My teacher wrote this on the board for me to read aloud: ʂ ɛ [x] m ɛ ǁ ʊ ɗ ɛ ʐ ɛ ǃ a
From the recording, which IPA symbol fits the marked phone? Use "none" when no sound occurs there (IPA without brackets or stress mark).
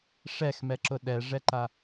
x